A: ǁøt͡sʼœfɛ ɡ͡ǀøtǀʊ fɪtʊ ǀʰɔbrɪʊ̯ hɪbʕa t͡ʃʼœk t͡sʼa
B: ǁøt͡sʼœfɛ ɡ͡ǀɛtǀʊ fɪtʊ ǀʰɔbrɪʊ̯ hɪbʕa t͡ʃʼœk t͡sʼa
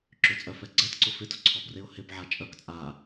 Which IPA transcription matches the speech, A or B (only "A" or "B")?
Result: B